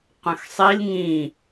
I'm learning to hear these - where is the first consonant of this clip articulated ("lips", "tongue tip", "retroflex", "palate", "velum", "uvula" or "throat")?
uvula